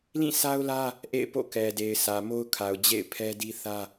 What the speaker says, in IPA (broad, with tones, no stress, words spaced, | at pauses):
lĩ˦˨sʰa˦ʊ̯lä˦ | ʔḛ˦˨ɪ̯po̰˦˨kɛ˨de˨ɪ̯ sʰä˨mo˦ʊ̯ kʰa˨ʊ̯d͡ʑḛ˦˨ɪ̯pʰɛ˦di˦ θä˦